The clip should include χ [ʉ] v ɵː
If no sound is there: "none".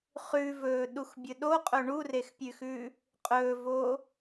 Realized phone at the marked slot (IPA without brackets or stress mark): ʉ